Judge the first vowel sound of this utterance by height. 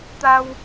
low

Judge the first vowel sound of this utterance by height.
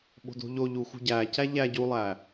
mid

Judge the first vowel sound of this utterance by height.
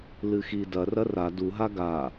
high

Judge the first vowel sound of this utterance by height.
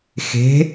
mid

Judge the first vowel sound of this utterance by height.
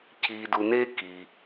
high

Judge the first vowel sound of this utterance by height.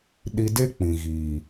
high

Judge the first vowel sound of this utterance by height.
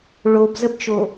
mid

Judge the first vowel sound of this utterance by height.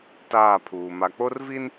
low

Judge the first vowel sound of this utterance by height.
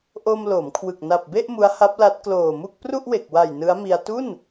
mid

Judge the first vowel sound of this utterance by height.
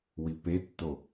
high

